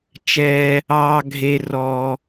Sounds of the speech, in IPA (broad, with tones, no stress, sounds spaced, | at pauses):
t͡ʃ ɛː˧ | ɑː˧ ɡʱ e˧ r ɔː˧